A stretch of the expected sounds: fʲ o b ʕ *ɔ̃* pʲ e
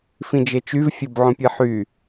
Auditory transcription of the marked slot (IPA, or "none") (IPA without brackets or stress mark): õ